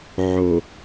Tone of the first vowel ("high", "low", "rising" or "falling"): low